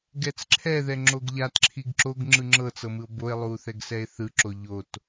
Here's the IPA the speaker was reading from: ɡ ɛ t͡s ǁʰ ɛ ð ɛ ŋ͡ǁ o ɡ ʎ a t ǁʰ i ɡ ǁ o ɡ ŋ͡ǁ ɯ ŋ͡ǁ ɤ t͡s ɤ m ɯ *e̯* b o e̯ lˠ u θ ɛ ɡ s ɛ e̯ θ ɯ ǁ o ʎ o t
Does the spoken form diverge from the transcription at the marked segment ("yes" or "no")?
yes